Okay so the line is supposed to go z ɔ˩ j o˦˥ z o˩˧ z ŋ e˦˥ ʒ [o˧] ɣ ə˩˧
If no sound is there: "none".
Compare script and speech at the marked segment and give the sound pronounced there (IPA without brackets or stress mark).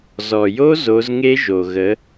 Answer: o˩